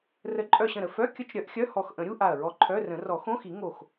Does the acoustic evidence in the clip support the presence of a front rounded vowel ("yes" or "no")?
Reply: yes